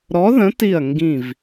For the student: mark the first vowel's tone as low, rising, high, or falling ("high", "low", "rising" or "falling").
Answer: rising